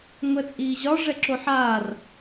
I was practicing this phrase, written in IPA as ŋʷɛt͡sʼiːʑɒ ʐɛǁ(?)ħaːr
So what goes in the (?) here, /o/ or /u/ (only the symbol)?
o